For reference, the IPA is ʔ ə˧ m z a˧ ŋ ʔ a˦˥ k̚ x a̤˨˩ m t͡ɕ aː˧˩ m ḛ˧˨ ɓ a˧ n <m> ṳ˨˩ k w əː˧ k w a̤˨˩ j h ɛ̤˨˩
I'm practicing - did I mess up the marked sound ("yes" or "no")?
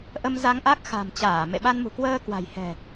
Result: no